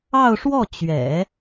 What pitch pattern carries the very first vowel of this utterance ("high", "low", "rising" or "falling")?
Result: falling